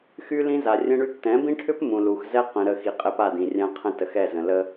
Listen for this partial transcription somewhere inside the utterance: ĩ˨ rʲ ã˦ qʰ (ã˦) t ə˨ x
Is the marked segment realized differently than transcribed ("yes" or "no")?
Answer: yes